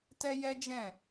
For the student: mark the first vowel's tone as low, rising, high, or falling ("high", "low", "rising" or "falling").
high